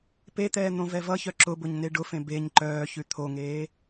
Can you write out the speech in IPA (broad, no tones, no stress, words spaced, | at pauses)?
pet̪ɛː n̪õvɛvʌçœ ǁʊbʊɲ neɖʊfẽ beɲ ǃœːçʉ t̪ʰoŋeː